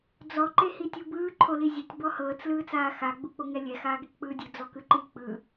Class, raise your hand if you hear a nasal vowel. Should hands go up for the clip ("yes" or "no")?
no